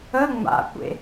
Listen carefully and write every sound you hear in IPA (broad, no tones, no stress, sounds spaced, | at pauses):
ə ŋ͡m a̰ kʷ ḛ